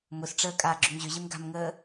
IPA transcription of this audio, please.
m ʊ s ʈ͡ʂ əː kʼ aː ɡ͡ǁ ʏ m ʑ ʏ ʑ ɪ m ɡ a̤ m ŋ əː

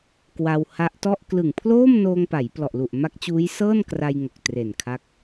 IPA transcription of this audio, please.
k w a˧ w h a˦˥ ʔ t ɔ˥˩ ʔ k l ɯ˨˩ ŋ pʰ l oː˥˩ m n oː˧ ŋ p a˩˦ j p l ɔ˨˩ ʔ l u˨˩ ʔ m a˦˥ k̚ t͡ɕ uː˦˥ j s ɤː˥˩ n k r a˧ j ŋ o˨˩ k̚ t r e˨˩ n kʰ a˦˥ k̚

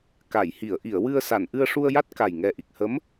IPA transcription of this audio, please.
k a˨˩˨ j h i˨˩˨ ə̯ ʔ i˨˩˨ ə̯ w ɨ˧ ə̯ s a˨˩˨ n ʔ ɨ˧ ə̯ ʂ u˧ ə̯ j a˦˥ t̚ k a˨˩ j ŋ ɛ˨˩ ʔ i˨˩ k̚ h ə˧˥ m

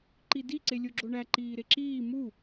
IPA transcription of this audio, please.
ǃ i d i ǀ e lʲ o ɡ͡ǁ o ɳ æ ǃ iː ɾ e ǁ iː m u

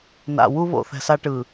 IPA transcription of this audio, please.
n a̰˨ w u˦ β o̰˨ θ ɛ̤˨ s a˦ ʈ ɯ˨

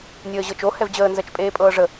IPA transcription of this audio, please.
nʲ əː ʑ ɤ t͡ʃ o h ɛ v d͡ʑ əː n z ɜ t͡ʃ pʼ eː pʼ ɤː ʐ ə

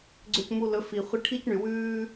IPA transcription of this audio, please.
ɡ͡ǀ ø˧ c m u˧ l ɵ˨˦ f i˨ χʷ i˧ ʈʰ i˦ c ɳ y˨ w ʉː˦

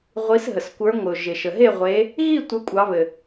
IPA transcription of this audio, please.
ʁʷ i˨˦ s ɦ ə˩ s kʷ ə˞˨˦ ŋʷ ɪ˩ ʊ̯ ʒ ɪ˩ ʃ ə˩ ɦ e˥˨ ʁʷ e˨˦ | ɣ i˥˨ tʷ ə˨˦ kʷʼ ɑ˨˦ β ɘ˩

